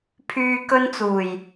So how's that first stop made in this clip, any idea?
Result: aspirated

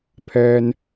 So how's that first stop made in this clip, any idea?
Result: aspirated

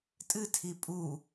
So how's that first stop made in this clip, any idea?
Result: ejective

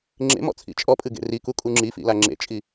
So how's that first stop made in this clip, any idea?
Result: click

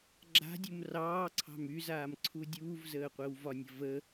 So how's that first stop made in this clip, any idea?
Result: click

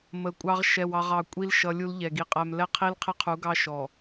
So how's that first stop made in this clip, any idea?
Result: ejective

